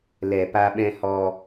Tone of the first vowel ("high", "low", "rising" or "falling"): low